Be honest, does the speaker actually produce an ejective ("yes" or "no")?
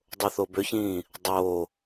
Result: no